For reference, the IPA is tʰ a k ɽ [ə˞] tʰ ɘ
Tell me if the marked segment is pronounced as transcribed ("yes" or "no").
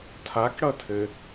no